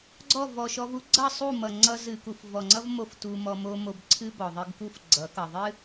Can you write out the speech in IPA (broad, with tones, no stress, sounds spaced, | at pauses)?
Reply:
ɡ͡ǀ ɔ˦˨ v ɔ˨ ʃ ɔ˧ v u˦ ɡ͡ǀ ʌ˦˨ sˤ u˦˨ m ʌ˨ ŋ͡ǀ ʌ˧ z ɨ˨ k u˨ f v ɔ˨ ŋ͡ǀ ʌ˦ v m o˦ f t u˧ m ɔ˧ m o˦ m o˧ b ǀʰ ɨ˦ b ɔ˨ ðˤ ɨ˧ ɡ k u˦ f ɡ͡ǀ ʌ˨˦ k ʌ˨ ðˤ ɨ˦